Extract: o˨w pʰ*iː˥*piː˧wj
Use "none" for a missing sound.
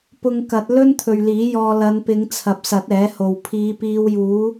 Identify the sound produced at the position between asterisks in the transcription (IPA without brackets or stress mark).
iː˨˧